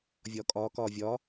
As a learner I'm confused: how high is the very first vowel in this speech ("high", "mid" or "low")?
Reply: low